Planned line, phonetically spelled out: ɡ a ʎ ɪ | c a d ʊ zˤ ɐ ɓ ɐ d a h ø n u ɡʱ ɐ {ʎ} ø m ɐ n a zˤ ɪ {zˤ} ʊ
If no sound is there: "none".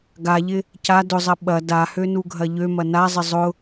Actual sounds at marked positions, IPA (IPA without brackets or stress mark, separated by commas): ʎ, zˤ